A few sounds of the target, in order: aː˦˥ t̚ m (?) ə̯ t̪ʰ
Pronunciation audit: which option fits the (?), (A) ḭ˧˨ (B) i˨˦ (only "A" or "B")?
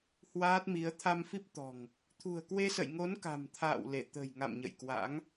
B